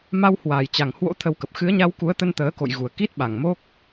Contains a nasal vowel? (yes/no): no